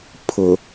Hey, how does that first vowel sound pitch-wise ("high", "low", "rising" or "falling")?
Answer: low